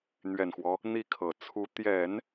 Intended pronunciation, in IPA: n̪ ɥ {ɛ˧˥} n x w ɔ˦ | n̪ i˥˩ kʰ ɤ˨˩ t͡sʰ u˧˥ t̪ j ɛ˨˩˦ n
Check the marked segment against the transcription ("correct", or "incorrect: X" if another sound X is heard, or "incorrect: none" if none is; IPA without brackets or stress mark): incorrect: ɛ˨˩